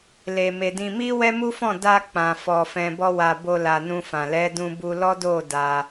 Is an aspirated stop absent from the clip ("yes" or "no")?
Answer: yes